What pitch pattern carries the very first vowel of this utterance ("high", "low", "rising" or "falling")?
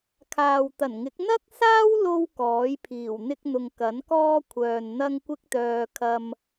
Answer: low